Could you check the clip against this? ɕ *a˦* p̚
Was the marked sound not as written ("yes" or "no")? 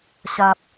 no